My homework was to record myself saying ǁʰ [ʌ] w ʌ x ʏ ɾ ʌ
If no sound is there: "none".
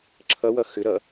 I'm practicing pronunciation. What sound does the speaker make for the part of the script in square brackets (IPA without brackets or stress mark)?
ʌ